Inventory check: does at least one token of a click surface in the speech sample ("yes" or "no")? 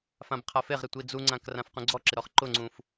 yes